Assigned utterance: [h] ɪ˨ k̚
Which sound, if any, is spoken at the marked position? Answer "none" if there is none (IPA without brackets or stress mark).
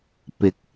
p